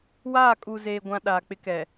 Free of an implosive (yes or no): no